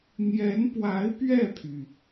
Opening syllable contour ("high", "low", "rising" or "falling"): rising